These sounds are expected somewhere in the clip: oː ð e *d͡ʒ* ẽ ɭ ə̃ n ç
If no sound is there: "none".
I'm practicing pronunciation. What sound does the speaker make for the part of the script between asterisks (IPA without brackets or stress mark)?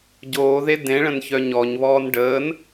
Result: d